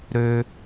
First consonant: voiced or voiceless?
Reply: voiced